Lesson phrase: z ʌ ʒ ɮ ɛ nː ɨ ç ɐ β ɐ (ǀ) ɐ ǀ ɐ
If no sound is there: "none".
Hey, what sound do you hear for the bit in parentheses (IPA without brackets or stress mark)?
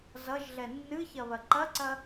ǃ